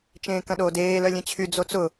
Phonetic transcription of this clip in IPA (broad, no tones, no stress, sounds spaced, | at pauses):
t͡ʃ ẽː k ɐ̃ ɗ oː d eː l œ lʲ ẽ t͡ɕʰ y d͡z o t͡s ʊ